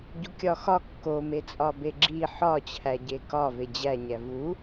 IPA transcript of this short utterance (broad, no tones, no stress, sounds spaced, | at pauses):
ɟ u kʲ ɒ x ɒ kː o m e t͡sʼ ɒ b e ɡ͡ǁ i ħ ɒ t͡ɕʰ æ ɟ e k ɒ v e d͡ʑ æ ɲ æ v u